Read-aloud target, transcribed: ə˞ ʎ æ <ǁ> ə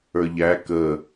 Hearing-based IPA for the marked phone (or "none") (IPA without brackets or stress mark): k